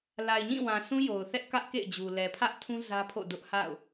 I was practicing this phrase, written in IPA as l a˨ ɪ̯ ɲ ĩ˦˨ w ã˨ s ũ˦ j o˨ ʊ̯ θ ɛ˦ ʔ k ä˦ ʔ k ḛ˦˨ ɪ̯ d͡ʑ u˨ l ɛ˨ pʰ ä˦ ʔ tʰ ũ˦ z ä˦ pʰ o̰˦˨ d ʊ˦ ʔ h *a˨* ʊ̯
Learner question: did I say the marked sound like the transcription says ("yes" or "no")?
no